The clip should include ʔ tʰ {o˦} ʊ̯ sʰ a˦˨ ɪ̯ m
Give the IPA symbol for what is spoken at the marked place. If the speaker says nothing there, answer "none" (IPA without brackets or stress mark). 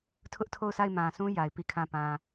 o˦˨